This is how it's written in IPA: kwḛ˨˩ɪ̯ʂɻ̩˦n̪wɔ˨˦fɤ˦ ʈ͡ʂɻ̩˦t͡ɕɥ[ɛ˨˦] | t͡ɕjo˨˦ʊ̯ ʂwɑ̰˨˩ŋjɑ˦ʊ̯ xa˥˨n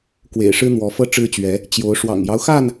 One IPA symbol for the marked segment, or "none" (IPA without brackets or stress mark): ɛ˨˦